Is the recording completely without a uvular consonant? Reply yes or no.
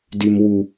yes